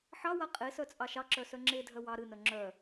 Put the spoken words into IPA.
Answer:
ħ ɑ w a qʼ e s œ t͡sʼ ɑ ʃ ɑ ǁ œ s œ ŋ͡ǁ e dʱ œ w ɑ ɾ ɨ n œ ŋ͡ǁ œ

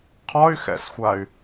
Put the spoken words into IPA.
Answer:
qʰ ɒ y̯ x ɛ̰ s xʷ a y̯

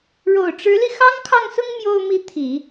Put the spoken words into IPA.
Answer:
ɻ o˨˩ ʊ̯ ʈ͡ʂ ɻ̩˧˥ l i˧ x ɑ˥ ŋ kʰ ɑ˥˩ ŋ s ʊ˥ ŋ m j o˥ ʊ̯ m i˥˩ t̪ʰ i˨˩˦

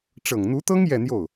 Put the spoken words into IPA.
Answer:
ʈ͡ʂ ɤ˨˩ ŋ n̪ u˧˥ t̪ ɤ˥ ŋ j ɛ˥˧ n̪ j o˥˩ ʊ̯

